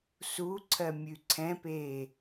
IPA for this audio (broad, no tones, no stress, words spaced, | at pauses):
suǀʰɜ mʲʉǀʰɛ̃peː